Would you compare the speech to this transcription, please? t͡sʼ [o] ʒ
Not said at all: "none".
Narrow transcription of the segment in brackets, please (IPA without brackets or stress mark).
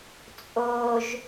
o